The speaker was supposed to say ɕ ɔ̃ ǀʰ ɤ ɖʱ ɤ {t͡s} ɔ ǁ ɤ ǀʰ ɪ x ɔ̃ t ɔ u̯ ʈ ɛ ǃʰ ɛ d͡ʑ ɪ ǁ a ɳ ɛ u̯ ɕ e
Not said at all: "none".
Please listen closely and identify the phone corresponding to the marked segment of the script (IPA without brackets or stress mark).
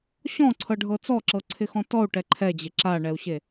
t͡s